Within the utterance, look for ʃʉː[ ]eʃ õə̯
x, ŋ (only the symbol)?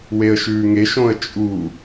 ŋ